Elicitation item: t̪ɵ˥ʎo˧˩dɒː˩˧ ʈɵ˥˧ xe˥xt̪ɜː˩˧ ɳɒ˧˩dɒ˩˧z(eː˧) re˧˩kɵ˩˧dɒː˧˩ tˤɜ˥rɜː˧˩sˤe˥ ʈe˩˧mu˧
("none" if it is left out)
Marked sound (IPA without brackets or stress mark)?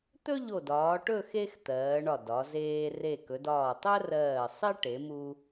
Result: eː˧